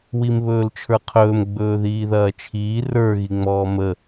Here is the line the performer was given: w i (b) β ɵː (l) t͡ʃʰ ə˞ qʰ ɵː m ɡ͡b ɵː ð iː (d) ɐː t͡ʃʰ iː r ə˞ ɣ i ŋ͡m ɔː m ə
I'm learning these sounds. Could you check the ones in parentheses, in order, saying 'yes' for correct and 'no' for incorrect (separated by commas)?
no, yes, no